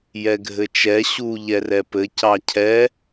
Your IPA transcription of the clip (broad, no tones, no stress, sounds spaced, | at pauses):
j ɛ ɡʱ ɘ t͡ʃ ɛ ɕ u ʎ ɛ r ɛ p ɘ c ɑ cʰ ɛ